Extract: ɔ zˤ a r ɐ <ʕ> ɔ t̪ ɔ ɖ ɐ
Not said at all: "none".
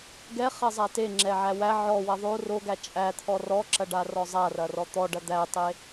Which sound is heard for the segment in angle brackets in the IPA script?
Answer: r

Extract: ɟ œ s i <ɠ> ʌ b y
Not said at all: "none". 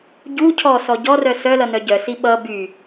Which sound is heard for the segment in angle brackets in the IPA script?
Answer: ɓ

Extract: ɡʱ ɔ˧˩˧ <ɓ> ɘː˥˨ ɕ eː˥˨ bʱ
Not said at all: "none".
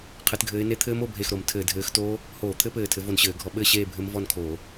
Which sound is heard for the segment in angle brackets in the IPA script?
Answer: ɓ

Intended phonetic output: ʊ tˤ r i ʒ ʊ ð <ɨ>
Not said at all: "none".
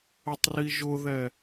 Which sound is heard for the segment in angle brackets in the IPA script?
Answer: ɛ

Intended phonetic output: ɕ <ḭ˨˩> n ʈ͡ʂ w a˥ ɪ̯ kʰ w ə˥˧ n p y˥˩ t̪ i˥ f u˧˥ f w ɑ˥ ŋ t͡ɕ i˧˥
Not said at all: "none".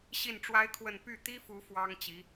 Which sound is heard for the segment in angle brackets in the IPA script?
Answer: i˥˩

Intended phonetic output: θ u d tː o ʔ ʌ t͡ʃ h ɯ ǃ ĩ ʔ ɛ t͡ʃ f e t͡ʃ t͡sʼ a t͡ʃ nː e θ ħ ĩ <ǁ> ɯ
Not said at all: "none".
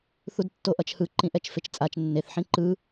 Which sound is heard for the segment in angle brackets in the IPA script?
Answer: ǃ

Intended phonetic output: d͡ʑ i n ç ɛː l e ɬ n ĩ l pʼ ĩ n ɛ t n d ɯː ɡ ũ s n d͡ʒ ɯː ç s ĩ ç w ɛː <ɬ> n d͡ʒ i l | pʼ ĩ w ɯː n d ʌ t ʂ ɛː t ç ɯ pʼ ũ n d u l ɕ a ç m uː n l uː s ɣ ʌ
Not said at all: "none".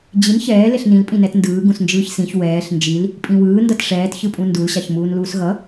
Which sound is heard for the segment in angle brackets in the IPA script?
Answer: ɬ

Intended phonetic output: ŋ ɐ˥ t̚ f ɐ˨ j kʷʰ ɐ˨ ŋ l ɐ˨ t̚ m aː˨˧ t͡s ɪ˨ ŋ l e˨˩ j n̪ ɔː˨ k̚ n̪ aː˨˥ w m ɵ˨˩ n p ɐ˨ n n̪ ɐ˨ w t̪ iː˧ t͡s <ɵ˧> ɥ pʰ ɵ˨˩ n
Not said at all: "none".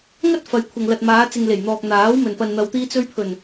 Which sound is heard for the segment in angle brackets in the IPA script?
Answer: ɵ˧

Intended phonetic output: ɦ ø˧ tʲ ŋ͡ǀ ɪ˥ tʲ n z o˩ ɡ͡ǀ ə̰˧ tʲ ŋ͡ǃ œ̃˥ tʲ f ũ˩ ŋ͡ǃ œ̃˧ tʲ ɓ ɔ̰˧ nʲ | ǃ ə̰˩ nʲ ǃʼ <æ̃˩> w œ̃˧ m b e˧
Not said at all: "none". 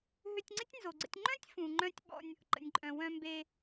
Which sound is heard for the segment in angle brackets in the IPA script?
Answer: œ̃˩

